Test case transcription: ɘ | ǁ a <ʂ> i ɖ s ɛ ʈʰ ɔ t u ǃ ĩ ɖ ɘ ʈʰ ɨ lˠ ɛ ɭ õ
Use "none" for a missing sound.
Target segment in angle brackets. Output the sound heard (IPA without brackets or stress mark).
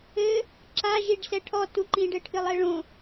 ʒ